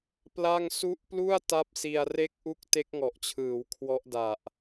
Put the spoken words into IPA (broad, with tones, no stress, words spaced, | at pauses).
pla˥˩ŋ su˦˥ʔplu˥˩a̯ ta˥˩p̚si˧a̯ re˥˩k̚ʔu˥˩k̚ te˦˥k̚ŋɔ˨˩ʔt͡ɕʰɯː˩˦w kʰwɔ˦˥ʔda˨˩ʔ